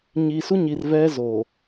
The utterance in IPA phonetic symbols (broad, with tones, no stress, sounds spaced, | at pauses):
ɲ i˨ s u˦ ɲ i˨ r v ɛ˦ z o˨